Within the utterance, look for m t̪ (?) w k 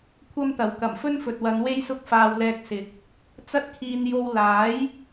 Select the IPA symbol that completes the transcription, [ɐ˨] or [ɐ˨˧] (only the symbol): ɐ˨